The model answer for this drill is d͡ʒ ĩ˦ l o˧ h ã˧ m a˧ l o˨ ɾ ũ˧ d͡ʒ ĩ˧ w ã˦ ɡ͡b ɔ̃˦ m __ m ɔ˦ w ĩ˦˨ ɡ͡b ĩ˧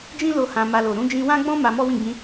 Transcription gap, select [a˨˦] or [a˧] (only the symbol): a˧